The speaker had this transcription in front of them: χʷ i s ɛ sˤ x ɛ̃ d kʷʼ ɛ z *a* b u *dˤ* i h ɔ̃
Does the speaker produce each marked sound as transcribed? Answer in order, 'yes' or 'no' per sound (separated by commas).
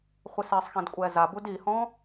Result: yes, no